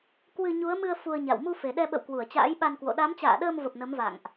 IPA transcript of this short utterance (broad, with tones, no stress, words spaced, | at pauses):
kwɨ˧ ɲu˨˦ə̯mɨ˧ə̯ fu˧ə̯ɲa̰˧˨w mu˧fe˨˩ɗɛ˧ɓə̰˧˨w kwu˧˩ə̯t͡ɕa̰ː˧˥jɓa˧nkwo̰˧˨ ɗa˨˦mt͡ɕa̰ː˧˨ɗəː˧mvə˨˩p̚ nə˨˦mva̰˧˨ŋʔ